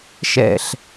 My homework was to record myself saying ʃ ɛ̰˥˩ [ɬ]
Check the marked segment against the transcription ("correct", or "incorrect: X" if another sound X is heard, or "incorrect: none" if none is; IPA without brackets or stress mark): correct